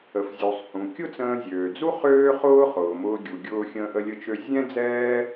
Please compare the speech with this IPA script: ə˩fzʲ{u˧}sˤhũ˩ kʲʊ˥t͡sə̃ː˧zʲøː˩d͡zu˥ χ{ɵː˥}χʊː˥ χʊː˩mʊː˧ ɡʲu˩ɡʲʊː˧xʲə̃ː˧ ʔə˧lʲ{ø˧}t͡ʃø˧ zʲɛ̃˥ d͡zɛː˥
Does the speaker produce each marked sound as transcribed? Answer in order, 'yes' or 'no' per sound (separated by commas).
no, no, no